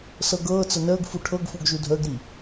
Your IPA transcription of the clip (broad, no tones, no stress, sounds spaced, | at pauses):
s ɤ ɡ ɤː t͡s ə n əː ɡ f u ʈʰ ɤ ɡ f u ɡ ʒ u dʱ əː ɡ ɾ i